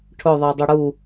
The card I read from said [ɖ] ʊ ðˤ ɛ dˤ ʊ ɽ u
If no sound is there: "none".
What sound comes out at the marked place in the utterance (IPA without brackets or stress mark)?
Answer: ʈʰ